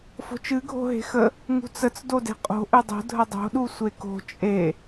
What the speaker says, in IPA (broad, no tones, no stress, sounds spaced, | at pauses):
f o̤ t͡ʃ ɨ ɡʱ o̤ ɦ e̤ x ə | ŋ ṳ t͡s ə t͡s d o d e̤ qʼ o̤ ʔ ɨ dˤ o̤ dʱ ə dˤ o̤ ɗ u sʷ e k o̤ t͡ʃʼ e